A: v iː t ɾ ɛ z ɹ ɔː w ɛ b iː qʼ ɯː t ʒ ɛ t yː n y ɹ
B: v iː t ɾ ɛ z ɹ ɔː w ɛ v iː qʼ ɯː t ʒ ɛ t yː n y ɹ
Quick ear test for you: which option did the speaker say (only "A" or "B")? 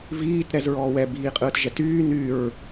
A